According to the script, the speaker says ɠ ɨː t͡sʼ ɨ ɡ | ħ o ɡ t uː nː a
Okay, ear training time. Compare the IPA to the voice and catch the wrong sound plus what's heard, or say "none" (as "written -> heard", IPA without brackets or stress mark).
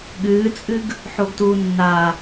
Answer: none